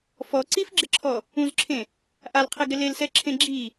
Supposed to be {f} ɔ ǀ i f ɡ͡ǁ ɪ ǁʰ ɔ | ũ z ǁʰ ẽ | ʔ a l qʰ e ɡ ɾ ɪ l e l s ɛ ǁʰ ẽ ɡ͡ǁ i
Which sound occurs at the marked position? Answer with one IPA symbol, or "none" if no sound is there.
f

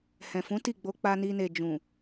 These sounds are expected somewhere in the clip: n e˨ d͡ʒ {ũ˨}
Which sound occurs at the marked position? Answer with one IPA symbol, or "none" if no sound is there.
ũ˨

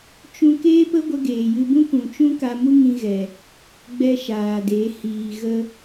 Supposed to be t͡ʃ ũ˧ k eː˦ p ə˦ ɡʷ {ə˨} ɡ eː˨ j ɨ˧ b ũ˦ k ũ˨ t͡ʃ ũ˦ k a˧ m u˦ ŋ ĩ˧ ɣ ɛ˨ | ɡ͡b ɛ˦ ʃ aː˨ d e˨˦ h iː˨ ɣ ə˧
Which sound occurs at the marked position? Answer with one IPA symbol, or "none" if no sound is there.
ə˧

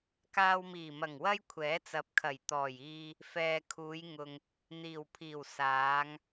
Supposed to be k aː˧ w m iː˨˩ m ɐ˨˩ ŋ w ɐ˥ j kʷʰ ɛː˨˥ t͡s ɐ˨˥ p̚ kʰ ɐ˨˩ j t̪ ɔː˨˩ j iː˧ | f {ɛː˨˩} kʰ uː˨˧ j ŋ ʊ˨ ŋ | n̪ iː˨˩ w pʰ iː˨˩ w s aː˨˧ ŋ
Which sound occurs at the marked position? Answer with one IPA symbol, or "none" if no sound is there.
ɛː˨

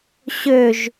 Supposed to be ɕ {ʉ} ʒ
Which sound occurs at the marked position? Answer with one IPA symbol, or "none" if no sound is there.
ø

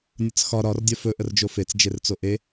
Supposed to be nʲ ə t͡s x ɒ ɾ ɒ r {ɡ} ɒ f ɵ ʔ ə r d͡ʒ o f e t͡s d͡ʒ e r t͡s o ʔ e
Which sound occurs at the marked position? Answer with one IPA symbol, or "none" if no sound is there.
dʲ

